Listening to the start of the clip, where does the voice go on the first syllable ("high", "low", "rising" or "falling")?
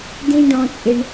high